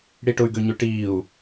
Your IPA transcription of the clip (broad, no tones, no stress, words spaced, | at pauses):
ɽiʈʊy̯ɡø ɲøʈiːu̯